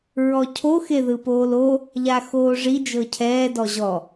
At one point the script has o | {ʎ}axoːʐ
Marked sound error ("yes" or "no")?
no